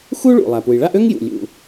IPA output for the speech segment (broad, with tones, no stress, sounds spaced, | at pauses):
x u˥ ɭ ṵ˩ lˠ æ˩ p u˩ j ɭ a˥ ʔ ø˥ ŋ j ṵ˩ lʲ ṵ˩